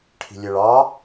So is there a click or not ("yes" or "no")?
no